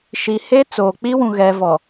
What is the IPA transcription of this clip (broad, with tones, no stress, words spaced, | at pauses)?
ʃi˨he˦t͡soː˨ k͡pi˦ wũ˨ɣɛ˨vɔ˨